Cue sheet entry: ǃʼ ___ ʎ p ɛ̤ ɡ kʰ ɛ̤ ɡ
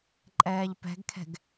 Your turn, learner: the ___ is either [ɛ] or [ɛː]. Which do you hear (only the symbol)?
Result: ɛː